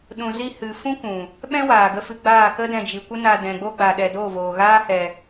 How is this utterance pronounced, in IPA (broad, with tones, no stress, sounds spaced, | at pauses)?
ɗ ũ˨ z i˧ h ɨ˨ f ũ˦ kʷ ũ˨ | ɓ ɛ̃˦ w aː˨ ɡ ə˧ f ɨ˧ ɡ͡b aː˦˨ k ə˦ d ɛ̃˧ d͡ʒ i˨ kʷ ə˦ n a˧ d ɛ̃˨ ɡ͡b o˦ ɡ͡b a˨ ɗ ɛ˨ d o˦˨ v oː˨ ɣ aː˦ h ɛ˧